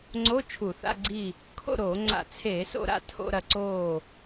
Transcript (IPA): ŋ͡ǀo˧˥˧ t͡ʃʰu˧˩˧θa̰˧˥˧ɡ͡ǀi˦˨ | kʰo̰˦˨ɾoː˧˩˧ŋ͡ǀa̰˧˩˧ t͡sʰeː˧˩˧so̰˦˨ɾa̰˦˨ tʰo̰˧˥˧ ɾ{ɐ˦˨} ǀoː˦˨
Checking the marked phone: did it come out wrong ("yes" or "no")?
no